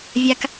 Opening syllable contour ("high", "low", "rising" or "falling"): high